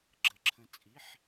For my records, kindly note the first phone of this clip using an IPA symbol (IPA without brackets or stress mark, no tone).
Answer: ɡ͡ǁ